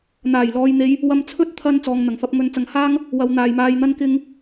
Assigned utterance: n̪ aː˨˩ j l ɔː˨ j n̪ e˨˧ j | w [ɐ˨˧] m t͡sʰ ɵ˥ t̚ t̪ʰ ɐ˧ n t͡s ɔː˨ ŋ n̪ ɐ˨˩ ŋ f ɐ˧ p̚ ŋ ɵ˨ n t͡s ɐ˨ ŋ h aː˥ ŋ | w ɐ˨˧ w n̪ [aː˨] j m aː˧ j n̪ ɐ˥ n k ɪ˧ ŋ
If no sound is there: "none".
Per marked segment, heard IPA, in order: ɐ˧, aː˨

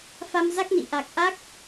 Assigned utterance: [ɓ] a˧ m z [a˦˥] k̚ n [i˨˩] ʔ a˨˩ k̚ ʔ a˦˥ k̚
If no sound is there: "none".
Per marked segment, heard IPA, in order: f, a˦˥, ḭ˧˨

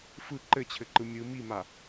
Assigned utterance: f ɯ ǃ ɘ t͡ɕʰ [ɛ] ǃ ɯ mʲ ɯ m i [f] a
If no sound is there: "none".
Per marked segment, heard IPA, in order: ɘ, m

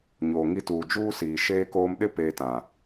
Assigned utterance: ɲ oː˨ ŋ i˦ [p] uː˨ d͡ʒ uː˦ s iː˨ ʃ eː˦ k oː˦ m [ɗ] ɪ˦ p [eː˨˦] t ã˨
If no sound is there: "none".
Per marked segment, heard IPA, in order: t, ɗ, eː˦

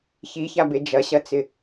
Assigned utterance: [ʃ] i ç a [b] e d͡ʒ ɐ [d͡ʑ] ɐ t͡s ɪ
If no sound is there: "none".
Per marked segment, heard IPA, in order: ç, b, ɕ

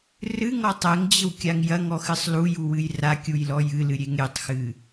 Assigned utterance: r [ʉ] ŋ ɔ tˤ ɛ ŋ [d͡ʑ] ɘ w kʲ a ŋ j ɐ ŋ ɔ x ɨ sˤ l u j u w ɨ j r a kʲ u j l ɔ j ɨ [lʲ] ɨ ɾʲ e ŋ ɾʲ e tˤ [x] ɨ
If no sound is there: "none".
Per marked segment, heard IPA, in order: ɨ, d͡ʑ, l, x

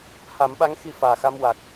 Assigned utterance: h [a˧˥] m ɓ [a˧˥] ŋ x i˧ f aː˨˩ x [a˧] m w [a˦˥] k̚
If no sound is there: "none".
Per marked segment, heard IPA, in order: a˨˩˦, a˧˥, a˧, a˨˩

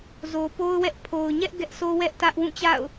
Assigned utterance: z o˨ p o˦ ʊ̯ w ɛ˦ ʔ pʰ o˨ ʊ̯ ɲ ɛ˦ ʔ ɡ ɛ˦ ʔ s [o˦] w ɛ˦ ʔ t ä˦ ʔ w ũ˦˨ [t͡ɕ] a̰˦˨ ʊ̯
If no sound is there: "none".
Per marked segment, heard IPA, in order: o˦, t͡ɕ

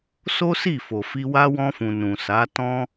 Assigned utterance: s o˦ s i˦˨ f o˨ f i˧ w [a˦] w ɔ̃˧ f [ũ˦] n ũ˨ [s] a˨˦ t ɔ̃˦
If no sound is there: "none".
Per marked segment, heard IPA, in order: a˦, ũ˨, s

